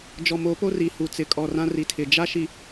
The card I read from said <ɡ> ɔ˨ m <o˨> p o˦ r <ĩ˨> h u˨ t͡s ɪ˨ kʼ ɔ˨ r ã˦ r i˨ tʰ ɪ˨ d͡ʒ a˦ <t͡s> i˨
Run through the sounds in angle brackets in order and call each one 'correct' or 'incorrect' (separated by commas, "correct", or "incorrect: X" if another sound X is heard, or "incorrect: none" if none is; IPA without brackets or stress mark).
incorrect: d͡ʒ, incorrect: o˨˦, incorrect: i˨, incorrect: ʃ